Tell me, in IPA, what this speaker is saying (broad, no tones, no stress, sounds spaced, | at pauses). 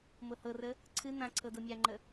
m ɤ h ɤ r ə | ǀʰ ɨ n̪ ã ǀʰ ɤ d ɤ mʲ a ŋ͡ǃ ə